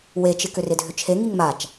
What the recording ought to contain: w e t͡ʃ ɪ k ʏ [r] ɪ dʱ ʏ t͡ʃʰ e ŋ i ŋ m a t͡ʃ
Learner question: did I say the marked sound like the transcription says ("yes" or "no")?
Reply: yes